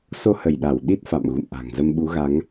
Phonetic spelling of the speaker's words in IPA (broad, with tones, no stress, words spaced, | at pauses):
so˧hə˧˩jɗa˧˩w ɗi˦˥t̚fa̰˧˨mɣṵ˧˨mʔa̤˨˩ŋ zə˧mɓu˨˦ɣa˨˦ŋ